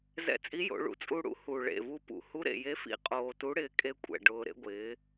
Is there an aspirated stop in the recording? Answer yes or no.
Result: no